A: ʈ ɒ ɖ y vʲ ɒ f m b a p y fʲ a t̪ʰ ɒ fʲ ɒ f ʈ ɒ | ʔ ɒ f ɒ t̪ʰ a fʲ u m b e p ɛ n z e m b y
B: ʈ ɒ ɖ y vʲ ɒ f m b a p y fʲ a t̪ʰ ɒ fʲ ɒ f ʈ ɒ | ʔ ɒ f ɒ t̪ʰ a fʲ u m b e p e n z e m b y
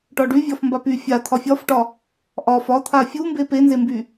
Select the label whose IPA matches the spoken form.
B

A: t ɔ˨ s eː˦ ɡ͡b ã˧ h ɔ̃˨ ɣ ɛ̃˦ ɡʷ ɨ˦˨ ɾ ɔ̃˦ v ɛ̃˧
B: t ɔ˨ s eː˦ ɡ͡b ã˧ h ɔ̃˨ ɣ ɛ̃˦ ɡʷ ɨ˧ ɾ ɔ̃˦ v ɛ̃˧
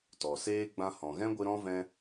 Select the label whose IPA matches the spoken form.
B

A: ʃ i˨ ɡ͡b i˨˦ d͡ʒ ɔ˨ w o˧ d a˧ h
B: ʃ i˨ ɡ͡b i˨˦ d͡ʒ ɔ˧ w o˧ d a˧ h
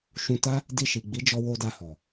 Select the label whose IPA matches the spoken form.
B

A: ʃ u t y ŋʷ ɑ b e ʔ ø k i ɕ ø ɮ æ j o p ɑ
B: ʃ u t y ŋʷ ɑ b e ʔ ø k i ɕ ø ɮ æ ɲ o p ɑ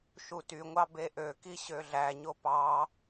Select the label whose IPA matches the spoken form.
B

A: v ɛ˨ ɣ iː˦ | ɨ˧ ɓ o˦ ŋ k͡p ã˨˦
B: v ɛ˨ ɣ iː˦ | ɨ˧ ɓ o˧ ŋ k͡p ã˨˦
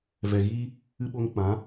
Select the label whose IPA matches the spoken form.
B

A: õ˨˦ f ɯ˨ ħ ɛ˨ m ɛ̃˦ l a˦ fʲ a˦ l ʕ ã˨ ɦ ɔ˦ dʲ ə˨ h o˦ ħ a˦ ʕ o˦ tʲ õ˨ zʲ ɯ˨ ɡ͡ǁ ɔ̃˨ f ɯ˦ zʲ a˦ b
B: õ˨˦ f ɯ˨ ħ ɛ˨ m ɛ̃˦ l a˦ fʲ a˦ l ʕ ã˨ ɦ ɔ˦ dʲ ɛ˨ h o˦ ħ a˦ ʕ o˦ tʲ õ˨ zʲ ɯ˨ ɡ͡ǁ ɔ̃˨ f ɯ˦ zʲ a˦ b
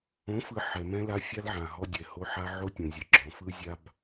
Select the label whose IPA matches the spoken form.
B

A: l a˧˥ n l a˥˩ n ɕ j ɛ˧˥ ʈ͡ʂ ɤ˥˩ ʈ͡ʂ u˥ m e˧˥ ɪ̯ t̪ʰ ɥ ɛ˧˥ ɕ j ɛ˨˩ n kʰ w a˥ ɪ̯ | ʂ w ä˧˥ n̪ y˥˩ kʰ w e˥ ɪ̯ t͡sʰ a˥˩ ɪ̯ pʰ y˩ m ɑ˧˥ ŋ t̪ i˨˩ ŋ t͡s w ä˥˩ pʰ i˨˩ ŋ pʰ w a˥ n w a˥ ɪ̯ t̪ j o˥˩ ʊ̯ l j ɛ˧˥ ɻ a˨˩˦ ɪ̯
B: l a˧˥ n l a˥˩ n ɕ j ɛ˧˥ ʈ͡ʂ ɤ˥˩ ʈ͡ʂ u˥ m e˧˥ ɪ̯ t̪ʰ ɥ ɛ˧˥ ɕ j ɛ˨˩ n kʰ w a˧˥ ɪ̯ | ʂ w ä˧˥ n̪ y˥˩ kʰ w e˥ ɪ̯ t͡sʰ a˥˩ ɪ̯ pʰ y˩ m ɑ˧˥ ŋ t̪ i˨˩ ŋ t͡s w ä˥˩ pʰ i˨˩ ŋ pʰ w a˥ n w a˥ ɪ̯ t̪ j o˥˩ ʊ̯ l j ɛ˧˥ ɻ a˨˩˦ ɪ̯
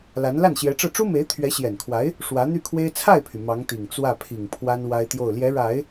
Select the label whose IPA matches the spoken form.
B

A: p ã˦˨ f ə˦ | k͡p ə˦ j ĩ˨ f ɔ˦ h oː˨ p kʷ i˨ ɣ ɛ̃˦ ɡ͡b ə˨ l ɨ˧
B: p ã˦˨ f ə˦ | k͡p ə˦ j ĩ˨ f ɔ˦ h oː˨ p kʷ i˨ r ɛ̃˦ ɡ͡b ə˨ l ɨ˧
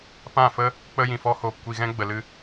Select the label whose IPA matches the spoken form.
A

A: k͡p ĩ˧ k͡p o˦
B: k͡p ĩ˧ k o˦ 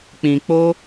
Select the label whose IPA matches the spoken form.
A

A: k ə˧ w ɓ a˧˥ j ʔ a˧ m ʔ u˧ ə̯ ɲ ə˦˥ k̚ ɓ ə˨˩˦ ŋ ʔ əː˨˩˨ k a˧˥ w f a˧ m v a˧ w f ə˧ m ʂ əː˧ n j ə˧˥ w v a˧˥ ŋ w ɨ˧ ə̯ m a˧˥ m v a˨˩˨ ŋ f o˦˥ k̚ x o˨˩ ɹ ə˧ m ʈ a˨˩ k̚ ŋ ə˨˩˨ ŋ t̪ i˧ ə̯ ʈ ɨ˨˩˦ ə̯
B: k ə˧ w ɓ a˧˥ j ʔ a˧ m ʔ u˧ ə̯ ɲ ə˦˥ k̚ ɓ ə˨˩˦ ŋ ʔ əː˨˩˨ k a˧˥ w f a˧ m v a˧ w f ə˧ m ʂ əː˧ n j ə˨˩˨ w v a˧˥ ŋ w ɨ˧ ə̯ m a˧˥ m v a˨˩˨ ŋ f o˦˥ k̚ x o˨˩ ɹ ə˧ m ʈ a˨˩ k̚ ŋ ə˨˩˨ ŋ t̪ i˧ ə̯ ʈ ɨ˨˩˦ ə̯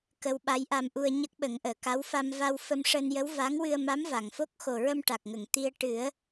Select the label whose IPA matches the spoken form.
A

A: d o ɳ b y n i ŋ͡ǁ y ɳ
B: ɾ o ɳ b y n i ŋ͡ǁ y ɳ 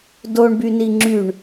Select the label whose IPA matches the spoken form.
A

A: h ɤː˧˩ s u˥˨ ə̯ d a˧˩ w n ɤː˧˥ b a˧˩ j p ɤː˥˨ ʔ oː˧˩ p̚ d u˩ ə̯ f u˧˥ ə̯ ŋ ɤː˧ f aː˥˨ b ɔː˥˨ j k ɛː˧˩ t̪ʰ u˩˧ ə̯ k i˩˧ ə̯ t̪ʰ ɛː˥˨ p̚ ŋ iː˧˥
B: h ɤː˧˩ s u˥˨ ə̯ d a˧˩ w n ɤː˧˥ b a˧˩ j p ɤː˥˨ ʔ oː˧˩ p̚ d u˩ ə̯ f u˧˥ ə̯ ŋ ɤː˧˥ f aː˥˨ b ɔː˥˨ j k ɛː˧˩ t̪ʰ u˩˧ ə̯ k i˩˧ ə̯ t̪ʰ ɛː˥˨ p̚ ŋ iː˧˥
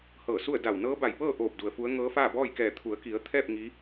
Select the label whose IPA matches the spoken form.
B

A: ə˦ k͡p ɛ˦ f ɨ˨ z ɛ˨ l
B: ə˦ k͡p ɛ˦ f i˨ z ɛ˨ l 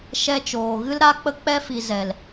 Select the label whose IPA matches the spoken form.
B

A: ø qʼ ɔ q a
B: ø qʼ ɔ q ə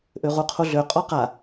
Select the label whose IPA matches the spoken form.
A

